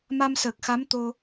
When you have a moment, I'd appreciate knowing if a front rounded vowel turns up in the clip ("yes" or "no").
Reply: no